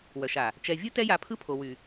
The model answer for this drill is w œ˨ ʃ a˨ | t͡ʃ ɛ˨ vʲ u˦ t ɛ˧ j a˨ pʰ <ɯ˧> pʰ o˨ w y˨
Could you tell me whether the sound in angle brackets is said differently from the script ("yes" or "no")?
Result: no